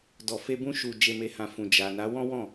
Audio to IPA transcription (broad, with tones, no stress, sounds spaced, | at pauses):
d ɔ˨ f e˧ b ũ˧ ʃ u˨ d͡ʒ e˨ m e˨ h ã˨ f ũ˨ d͡ʒ a˨ n a˨˦ w ɔ̃˦ w ɔ̃˦˨